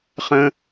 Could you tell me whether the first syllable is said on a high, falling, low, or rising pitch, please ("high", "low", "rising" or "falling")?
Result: high